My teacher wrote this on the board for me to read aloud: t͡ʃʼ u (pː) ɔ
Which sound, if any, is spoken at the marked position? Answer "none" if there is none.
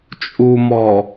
m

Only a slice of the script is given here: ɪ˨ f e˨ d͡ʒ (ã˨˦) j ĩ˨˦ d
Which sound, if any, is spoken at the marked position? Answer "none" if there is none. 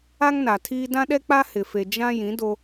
ã˦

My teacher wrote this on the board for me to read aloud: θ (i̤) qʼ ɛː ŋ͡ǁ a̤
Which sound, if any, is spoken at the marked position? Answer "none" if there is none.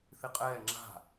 i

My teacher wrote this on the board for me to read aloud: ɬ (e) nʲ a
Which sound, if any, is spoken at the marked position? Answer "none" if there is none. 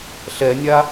ɛ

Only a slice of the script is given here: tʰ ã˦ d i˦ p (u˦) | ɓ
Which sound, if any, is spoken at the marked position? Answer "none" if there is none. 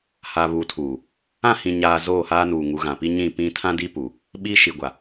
u˨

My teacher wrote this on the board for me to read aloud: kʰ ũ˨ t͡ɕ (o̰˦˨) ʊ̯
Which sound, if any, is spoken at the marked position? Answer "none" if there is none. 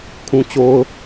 o˨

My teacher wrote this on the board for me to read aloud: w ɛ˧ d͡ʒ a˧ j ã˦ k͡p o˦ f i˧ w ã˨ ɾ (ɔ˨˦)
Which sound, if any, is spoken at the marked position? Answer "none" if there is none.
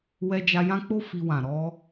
ɔ˧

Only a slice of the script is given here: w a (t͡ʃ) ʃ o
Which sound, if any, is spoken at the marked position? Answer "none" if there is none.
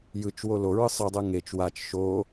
t͡ʃ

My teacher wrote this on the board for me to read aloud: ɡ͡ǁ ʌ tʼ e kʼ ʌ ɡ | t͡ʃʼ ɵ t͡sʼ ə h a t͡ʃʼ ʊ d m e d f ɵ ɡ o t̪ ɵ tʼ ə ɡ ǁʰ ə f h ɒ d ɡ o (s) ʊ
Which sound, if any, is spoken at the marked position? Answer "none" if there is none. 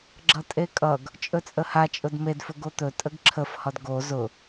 z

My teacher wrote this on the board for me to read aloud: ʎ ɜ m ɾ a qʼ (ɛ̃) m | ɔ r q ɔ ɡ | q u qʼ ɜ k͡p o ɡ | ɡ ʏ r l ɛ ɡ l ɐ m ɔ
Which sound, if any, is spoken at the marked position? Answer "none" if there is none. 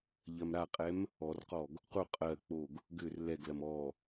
ɛ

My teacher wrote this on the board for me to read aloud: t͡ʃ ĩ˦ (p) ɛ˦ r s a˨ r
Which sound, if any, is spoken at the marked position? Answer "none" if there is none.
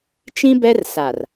b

